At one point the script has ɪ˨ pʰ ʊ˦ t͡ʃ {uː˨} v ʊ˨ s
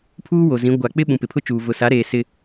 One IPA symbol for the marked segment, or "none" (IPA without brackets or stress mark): uː˨